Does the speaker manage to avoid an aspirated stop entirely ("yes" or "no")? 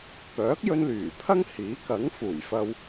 no